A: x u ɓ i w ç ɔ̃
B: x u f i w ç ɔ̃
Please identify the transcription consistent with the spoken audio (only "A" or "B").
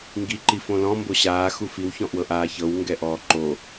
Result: B